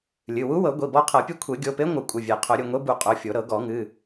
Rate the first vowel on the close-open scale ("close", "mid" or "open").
close